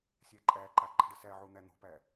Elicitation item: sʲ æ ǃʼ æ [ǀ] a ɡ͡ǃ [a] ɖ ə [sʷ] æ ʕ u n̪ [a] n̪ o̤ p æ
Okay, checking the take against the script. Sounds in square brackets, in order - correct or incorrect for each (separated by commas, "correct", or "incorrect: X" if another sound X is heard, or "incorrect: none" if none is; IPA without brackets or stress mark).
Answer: incorrect: ǃ, incorrect: a̤, incorrect: s, incorrect: æ